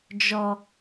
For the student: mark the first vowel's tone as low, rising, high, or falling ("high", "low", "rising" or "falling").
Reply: low